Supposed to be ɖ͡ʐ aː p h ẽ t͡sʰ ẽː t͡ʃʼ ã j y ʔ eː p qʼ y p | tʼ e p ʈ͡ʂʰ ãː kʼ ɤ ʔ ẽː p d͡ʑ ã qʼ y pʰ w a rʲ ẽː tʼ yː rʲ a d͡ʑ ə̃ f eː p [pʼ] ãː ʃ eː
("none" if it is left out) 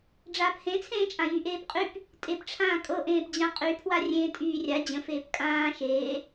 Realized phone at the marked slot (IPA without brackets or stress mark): kʼ